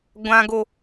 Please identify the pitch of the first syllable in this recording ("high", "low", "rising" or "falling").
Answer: low